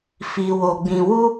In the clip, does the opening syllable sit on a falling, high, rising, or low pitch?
low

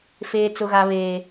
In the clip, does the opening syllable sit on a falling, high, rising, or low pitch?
high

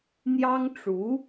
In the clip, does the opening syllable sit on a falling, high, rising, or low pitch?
high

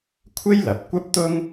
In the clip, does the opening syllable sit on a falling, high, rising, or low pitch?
high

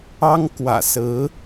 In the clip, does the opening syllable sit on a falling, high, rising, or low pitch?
high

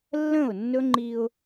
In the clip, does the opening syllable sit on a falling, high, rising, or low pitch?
falling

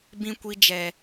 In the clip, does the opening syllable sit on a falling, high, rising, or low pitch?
high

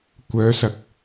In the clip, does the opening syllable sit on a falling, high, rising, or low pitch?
rising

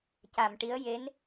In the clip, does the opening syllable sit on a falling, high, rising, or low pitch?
low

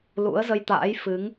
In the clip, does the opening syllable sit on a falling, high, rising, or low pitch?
rising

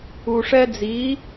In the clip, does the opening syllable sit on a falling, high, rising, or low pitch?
low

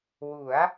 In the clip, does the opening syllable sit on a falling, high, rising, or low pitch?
rising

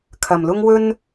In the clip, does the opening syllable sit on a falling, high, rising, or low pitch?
low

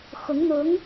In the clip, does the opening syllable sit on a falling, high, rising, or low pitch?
rising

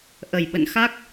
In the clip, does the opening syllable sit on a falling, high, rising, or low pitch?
low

